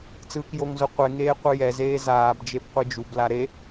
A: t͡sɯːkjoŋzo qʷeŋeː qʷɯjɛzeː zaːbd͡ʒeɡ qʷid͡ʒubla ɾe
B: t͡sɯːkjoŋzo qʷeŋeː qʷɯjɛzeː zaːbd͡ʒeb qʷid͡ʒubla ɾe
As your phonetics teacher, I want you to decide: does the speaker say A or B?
B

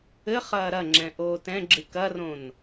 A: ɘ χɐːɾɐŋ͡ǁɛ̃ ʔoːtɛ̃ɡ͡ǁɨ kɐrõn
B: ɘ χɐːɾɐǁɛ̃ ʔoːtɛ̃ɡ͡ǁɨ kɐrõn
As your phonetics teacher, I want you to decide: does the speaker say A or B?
A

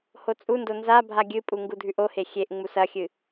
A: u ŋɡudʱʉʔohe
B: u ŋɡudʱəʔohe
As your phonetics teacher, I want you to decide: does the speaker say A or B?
A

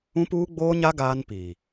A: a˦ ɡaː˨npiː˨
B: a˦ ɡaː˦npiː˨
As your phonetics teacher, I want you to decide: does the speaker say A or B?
B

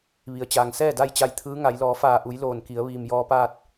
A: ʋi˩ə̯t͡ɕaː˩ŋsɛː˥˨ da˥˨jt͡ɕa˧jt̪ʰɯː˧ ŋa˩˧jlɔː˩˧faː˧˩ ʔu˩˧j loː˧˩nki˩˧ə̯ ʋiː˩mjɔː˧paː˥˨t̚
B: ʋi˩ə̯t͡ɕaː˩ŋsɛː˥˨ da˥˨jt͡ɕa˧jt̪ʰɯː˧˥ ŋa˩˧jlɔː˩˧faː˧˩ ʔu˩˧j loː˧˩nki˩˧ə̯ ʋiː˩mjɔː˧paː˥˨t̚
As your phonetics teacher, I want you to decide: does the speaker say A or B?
B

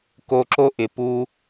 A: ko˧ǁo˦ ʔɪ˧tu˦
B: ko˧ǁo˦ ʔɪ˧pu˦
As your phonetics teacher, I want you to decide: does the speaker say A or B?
B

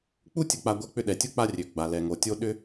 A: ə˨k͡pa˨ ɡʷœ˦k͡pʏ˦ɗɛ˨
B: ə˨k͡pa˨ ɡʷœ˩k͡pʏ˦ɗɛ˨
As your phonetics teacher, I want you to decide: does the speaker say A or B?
A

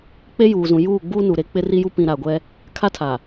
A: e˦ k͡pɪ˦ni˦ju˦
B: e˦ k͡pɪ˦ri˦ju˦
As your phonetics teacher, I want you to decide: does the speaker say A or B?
B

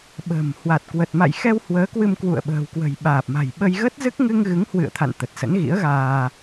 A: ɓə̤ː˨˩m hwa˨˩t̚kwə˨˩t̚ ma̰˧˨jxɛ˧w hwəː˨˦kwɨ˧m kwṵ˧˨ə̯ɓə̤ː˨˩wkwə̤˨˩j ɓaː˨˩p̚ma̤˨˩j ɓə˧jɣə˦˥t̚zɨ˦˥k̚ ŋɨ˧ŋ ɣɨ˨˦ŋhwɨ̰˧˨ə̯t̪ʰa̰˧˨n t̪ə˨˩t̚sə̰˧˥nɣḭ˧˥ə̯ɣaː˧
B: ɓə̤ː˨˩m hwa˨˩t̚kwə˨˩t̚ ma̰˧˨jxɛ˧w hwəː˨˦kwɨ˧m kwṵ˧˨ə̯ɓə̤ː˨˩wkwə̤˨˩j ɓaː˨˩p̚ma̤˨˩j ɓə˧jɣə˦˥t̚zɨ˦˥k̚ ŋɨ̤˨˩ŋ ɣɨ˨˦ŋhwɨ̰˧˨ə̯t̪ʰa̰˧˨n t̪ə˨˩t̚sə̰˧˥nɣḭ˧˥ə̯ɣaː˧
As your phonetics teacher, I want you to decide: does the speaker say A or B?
A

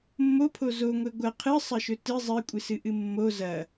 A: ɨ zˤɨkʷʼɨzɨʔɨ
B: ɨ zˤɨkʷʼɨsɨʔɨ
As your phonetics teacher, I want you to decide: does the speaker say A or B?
B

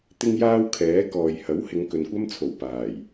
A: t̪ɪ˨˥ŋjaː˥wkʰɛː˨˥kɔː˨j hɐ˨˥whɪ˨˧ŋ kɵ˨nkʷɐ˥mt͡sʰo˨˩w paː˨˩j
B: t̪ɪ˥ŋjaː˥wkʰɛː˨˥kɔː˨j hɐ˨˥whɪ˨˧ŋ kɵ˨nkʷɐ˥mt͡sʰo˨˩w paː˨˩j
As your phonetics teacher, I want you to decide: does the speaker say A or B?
B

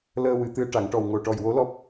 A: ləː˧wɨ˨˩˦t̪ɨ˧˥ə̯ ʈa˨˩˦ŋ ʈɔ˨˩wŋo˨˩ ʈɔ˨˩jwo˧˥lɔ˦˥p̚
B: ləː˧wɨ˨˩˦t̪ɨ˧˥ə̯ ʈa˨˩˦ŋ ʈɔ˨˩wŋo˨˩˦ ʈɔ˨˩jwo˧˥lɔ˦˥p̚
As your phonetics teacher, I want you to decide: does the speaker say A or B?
A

